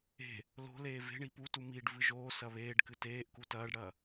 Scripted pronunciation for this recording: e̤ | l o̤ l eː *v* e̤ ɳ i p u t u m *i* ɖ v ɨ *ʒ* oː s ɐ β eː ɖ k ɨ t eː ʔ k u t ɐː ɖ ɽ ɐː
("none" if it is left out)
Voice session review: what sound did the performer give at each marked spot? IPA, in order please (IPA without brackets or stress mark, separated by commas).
v, i, ʒ